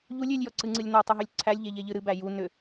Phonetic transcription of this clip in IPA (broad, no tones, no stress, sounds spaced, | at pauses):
ʎ u lʲ ʏ lʲ j ɔ ǀ ɨ ŋ͡ǀ ɨ lʲ n ɔ tˤ u ɦ ʏ lʲ ǀʰ æ lʲ ʎ e ʎ e ʎ ɨ ɾ ɨ b æ j u n ʏ